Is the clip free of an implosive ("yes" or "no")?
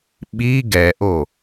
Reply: no